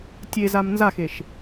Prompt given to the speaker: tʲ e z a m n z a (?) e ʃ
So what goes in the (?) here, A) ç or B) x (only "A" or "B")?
B